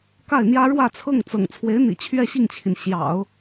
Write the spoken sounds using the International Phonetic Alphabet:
k a˥˩ ɪ̯ n̪ j ä˥ ɻ w ä˥˧ t͡sʰ ɤ˥˩ ŋ t͡s ɤ̰˨˩ ŋ t͡sʰ w e˧˥ ɪ̯ n̪ ḭ˨˩ t͡ɕʰ ɥ ɛ˥˧ ɕ i˥˩ ŋ t͡ɕʰ i˩ n ɕ j ɑ̰˨˩˦ ʊ̯

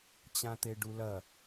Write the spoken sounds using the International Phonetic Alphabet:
t͡ɕ ã t̪ e ɖ u l ɐ

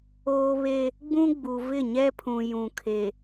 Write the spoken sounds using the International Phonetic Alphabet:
oː˦ β e˦ | ɡ͡b ũ˦ ɡ͡b u˨ v ɪ˦˨ ɲ ɛ˦ pʰ ũ˨ j ũ˨ kʰ e˨

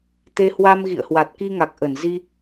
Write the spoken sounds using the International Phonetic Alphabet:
t̪ e˧ h w a˧ m ɣ ḭ˧˨ ə̯ h w a˨˩ t̚ k i˧ ŋ a˨˩ k̚ ʔ ə˧˩ n z i˧

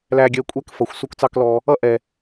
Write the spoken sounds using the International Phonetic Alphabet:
l æ˧ ɡʲ ɜ˧ kʷʼ ɛ˦ k f ʌ˨ xʷ s u˦ k t͡s ɑ˦ k l ɔ˧ | ʌ˦ ʔ ɛ˨

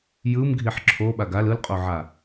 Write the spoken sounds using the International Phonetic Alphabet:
j ɯ m ɡʱ i ħ ǁʰ o ɓ a ɡ a l ɯ l qʼ o ʕ a

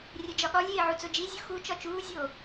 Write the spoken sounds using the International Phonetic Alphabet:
rʲ e d͡ʒ ɒ ɠ ɒ lʲ eː ʕ u t͡s o d͡ʒ i zʲ u x u t͡ʃ ɒ t͡ʃ uː zʲ oː

